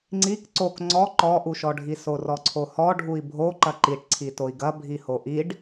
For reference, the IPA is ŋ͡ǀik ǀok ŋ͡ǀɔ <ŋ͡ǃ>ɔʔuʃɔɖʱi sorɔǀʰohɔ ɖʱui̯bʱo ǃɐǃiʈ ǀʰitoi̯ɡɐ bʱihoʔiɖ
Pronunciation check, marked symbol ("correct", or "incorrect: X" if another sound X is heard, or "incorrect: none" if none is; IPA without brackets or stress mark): incorrect: ǃ